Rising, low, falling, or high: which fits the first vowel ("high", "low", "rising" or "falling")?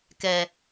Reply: low